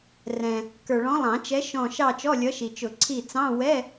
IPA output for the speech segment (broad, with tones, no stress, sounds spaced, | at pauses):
r ɛ̃˨ | k ə˞˨ ɭ ɔ̃˨˥ lˠ ɑ̃˨˩˦ t͡ʃ ɛ˨˥ ʃ ɔ̃˦˨ ʃ ɑ˦˨ t͡ʃ ɔ˧˥˧ lʲ ʌ˨˥ ʃ i˨ t͡ʃ ʊ˨˩˦ ǀʰ i˦˨ t͡s ɑ̃˧˥˧ w ɛ˧˥˧